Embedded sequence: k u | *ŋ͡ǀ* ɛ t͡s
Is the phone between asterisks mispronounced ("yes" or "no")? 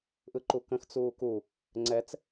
no